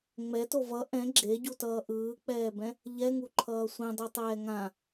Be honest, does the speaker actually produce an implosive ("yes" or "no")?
no